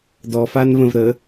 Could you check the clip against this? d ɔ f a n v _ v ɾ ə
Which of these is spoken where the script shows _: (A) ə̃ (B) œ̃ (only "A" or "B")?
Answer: A